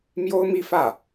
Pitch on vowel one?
high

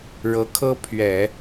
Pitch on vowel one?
rising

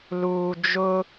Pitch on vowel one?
low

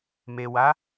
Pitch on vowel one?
low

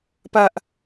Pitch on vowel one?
low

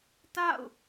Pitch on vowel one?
falling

